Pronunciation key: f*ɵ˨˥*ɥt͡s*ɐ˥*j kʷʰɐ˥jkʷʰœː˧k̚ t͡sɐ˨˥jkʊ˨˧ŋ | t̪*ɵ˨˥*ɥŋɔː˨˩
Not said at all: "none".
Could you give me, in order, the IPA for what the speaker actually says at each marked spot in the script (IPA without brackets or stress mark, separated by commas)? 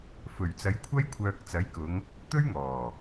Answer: ɵ˨˩, ɐ˨˧, ɵ˥